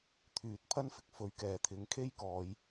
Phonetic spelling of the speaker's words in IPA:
t̪ʰ yː˨ t̚ pʰ ɐ˥ n f ɪ˨˥ k̚ f ɵ˨˥ ɥ k ɛː˨˩ t̪ʰ ɪ˨˥ ŋ kʰ e˥ j k ɔː˨˧ j

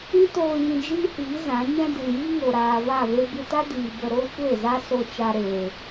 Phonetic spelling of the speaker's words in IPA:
ĩ˦ t oː˧ j ĩ˧ d͡ʒ iː˦ h iː˨˦ z ã˨˦ ɲ ɛ̃˦ d ɨ˨ j i˦ ŋ o˨ ɾ aː˨ v a˦˨ v e˦ b ɨ˧ t a˦ d iː˨ b ə˧ ɾ oː˦ kʷ e˦˨ z a˦ s o˧ t͡ʃ a˧ ɾ eː˨

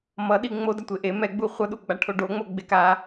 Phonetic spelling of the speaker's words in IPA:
m ʌ ɗ i ŋ͡m o d a tʷ e ʔ e m ɛ ɡ͡b u χʷ ʌ ɗ u ɡ͡b a ʈʰ o ɖ o ŋ͡m o ɡ͡b e k a

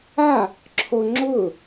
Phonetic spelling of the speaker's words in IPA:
a | ǁʰ o ŋ͡ǁ ʊː

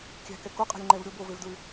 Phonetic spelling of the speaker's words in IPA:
kʲ æ̤ k ɛ k o qʼ ɛ̤ lʲ ŋ͡ǃ ɛ v ɾʲ o b o v e v d ɹ ʉ

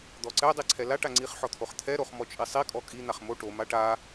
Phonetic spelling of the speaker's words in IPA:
d̪ ɔ ǀ ɛ dˤ i ǀʰ ɛ l a ʈ a ŋ͡ǀ i χ ħ ɔ t̪ʰ o χ t̪ʰ ɛ ɾ o χ m ɔ t͡ʃʼ i sˤ i kʼ ɔ kʼ i n̪ a χ m o ʈ o m a ʈ a

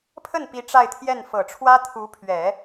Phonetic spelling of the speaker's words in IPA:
pʰ ə˥˩ n p i˧˥ ʈ͡ʂ a˥˧ ɪ̯ t̪ʰ j ɛ˥˩ n f ɤ˨˩ ʈ͡ʂʰ w ä˥ t̪ʰ u˧˥ pʰ ɥ ɛ˨˩˦

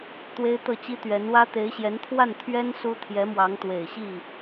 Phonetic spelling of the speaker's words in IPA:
t̪ w e˥ ɪ̯ t̪ ɤ˥˩ t͡ɕ i˥ t̪ ɥ ɛ˧˥ n w ä˥ t̪ e˧˥ ɪ̯ ɕ j ɛ˧˥ n t̪ʰ w a˥˩ n t̪ʰ ɥ ɛ˥ n s u˥ t̪ʰ j ɛ˧˥ m w ɑ˧˥ ŋ t̪ w e˨˩ ɪ̯ ɕ i˥˩

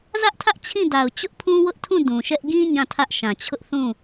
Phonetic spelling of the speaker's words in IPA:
z ä˦ ʔ tʰ ä˦ ʔ t͡ɕʰ ĩ˦˨ d a˨ ʊ̯ t͡ɕ ʊ˦ ʔ pʰ ũ˦ w ʊ˦ ʔ tʰ ũ˦˨ d ũ˨ ʃ ɛ˦ ʔ ɡ ĩ˦ ɲ ã˦˨ tʰ ä˦ ʔ ʃ ã˨ t͡ɕʰ ʊ˦ ʔ θ ũ˦˨

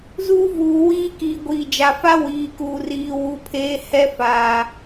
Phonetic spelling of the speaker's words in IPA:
z uː˦ v uː˨ w iː˦ k iː˨ ɡʷ iː˨ d͡ʒ a˨ f a˦ w iː˨ k uː˨ r iː˨ w u˨ pʰ eː˨˦ h ɛ˦ f aː˨

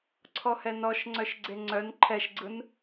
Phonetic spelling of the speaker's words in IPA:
ǀʰ ɔ h ɛ n ɔ ʃ ŋ͡ǀ œ ʃ ɡ͡ǀ e ŋ͡ǀ œ n ǃʰ ɛ ʃ ɡ͡ǀ ɯ n

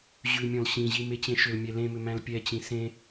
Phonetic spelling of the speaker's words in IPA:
ʑ ʉ mʲ ɔ̃ l ɕ ĩ ʑ i m e t͡ɕ ẽ ʃ ʏ l mʲ ɛ l ẽ m ʏ m æ̃ l pʲ ɛ t͡ɕ ĩ s ẽ

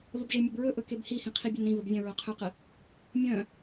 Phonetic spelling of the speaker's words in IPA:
v ə b ʒ e mʲ ɐ b ɹ ɵ ʔ ɵ k e b h i h ĩ qʰ i bʲ ɵ n ɾ ĩ v ə b vʲ œ̃ ɹ œ qʰ ɵ q ə | mʲ œ̃

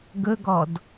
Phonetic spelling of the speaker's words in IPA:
ɡ ɵ ɡ ɔ d

